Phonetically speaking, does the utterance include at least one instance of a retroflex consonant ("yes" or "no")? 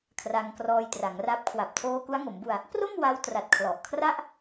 no